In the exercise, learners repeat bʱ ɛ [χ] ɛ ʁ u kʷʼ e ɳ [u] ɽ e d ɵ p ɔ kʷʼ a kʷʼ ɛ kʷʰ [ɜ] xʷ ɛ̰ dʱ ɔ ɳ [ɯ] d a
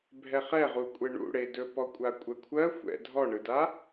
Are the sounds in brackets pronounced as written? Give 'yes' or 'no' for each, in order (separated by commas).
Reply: yes, no, yes, yes